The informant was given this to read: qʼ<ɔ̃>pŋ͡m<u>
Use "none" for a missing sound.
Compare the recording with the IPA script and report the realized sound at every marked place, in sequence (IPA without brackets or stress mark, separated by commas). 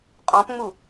ɔ̃, u